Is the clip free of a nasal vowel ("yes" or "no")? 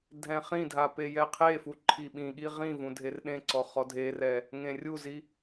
no